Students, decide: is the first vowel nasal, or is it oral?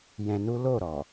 nasal